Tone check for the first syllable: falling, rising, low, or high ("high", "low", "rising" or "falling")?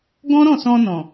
high